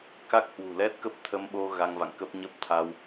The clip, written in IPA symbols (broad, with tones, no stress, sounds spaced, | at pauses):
k a˦˥ k̚ h w ṳ˨˩ l ɛ˦˥ t̚ k ə˦˥ p̚ t̪ʰ ə˧ m ɓ o˧ ɣ a˧ ŋ v a̰˧˨ ŋ k ə˦˥ p̚ ɲ ə˦˥ p̚ t̪ʰ a˧ w